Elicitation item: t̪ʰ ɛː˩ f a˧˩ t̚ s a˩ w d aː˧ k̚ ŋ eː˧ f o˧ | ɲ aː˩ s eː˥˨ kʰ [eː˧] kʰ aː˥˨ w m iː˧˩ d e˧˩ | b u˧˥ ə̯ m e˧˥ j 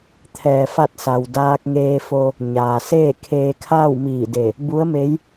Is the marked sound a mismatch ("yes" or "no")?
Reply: no